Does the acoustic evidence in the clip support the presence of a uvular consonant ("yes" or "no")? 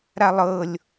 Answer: no